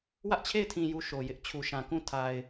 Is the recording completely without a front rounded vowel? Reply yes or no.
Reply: yes